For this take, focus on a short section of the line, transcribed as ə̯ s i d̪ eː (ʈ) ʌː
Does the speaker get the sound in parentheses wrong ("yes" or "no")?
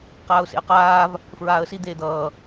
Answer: yes